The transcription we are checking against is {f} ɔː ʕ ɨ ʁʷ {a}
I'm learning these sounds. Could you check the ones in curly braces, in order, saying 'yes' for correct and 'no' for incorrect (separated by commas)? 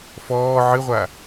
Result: yes, yes